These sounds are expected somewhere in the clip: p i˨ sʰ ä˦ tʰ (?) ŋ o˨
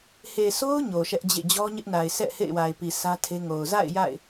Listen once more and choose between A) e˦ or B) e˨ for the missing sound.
A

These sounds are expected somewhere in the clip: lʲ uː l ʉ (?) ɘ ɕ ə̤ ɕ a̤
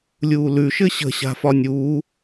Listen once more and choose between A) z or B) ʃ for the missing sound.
B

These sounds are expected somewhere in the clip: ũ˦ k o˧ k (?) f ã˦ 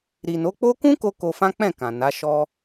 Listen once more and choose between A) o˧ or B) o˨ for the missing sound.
A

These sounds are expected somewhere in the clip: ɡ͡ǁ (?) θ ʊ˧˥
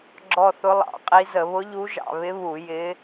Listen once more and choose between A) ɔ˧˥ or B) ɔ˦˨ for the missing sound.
B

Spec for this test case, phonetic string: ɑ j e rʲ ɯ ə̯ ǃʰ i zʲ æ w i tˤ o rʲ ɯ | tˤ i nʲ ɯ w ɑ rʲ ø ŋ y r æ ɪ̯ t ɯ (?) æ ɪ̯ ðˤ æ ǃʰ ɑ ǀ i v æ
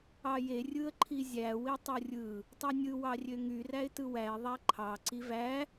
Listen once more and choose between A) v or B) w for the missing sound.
B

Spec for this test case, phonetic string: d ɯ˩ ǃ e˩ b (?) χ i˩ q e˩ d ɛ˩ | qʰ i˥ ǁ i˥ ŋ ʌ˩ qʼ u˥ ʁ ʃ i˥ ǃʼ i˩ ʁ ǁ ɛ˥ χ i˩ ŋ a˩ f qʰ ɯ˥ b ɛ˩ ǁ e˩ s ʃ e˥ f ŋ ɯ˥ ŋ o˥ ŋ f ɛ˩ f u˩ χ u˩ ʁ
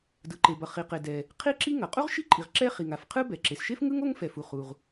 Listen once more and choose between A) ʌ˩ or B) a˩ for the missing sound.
A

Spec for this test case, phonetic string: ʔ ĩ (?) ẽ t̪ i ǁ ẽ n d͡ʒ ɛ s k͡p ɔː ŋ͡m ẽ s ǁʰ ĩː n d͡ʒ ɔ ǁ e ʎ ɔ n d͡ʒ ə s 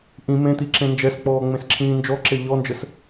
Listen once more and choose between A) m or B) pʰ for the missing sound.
A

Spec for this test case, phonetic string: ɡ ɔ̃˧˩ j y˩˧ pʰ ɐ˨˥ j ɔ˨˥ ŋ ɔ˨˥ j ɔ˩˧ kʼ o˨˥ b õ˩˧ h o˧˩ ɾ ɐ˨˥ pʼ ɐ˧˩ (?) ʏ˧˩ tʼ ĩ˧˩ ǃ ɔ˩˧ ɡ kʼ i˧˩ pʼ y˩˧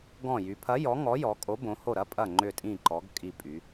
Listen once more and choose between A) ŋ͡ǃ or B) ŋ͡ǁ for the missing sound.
A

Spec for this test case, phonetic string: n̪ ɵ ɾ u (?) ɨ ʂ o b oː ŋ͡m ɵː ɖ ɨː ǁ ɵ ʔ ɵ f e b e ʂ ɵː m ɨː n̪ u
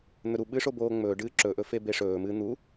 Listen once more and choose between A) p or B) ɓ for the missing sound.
B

